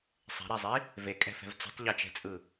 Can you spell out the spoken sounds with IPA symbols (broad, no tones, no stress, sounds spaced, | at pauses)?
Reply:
sˤ ɛ̤ ɾ ɛ zˤ i | v e kʼ ɛ̤ f ɛ̤ v t͡s ṳ tˤ ʎ e t͡ʃ ɛ̤ t͡sʼ ɯ